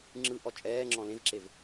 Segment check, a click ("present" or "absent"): present